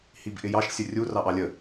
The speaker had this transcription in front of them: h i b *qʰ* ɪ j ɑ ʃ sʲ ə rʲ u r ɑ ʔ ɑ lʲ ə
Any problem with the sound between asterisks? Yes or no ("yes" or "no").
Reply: yes